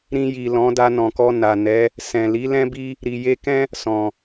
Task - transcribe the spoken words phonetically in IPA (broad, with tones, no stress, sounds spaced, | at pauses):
ɾ ĩ˧ j i˨ l ɔ̃˨˦ d a˧ n ɔ̃˨ k ɔ˧ n a˨ n ɛ˨˦ | s ɛ̃˨ l i˨˦ l ɛ̃˦ b i˧ | ɾ i˨ j e˧ k ɛ̃˦ | s ɔ̃˨